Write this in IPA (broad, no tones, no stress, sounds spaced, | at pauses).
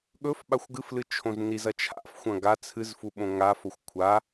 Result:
ɠ ɵ f ɓ a xʷ ɡ ɨ f l ɨ t͡ʃʰ õ z n i z ɐ t͡ʃʰ a̰ f xʷ ɐ̃ ɡ a t͡sʰ ɨ z f u ɓ õ ŋ a f o xʷ kʷʰ a